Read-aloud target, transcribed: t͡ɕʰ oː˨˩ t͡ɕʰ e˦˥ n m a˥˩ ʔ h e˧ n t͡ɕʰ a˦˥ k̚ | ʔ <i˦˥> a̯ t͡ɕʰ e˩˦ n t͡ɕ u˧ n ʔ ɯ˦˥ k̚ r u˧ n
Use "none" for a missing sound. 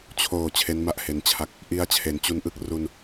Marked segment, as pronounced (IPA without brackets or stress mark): i˦˥